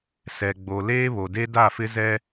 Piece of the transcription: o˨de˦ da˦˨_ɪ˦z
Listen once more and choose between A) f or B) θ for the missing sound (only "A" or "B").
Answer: A